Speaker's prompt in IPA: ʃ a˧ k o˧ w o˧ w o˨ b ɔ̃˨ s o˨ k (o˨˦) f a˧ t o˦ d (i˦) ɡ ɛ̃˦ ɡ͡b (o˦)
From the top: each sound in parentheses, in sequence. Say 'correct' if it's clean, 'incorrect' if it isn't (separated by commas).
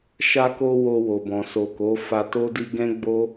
correct, correct, correct